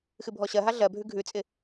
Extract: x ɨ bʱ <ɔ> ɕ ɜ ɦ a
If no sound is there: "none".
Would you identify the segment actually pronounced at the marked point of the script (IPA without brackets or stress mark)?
ɔ